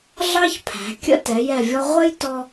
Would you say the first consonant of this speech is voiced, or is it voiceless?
voiced